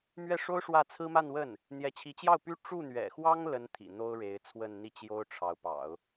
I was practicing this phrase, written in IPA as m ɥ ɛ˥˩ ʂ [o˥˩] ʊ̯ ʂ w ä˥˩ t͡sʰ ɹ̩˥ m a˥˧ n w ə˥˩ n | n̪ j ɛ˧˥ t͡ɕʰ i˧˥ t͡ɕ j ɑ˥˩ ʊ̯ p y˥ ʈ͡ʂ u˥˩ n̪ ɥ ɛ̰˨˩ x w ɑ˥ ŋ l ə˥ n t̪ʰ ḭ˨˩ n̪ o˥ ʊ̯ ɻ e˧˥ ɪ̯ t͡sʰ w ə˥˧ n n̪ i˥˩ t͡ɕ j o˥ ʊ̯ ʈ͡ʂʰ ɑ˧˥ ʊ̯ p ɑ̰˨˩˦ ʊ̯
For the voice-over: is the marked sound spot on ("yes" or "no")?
no